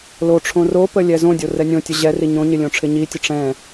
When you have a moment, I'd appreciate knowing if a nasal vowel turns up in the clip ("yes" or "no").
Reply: yes